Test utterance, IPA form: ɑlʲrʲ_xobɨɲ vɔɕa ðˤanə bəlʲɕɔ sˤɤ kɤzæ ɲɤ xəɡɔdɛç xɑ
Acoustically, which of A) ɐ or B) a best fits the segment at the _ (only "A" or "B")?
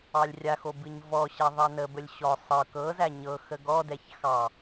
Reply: B